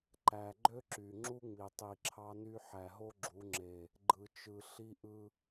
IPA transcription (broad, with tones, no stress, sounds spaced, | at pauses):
ǃ æ˨ ɡ͡ǃ ø˦ ǁ y˨ ŋ͡ǁ u˦ ŋ͡m i˨ tˤ i˨ ǁʰ ɑ˦ n y˦ ħ æ˨ ɦ o˦ ɡ͡ǁ u˨˦ ŋ͡ǁ e˨ | ɡ͡ǃ ɯ˨ t͡ʃ ɯ˨ ɬ i˦ ʔ ɯ˦